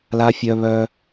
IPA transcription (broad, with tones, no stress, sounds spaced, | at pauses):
l a˧ fʲ œ˧ β œ˧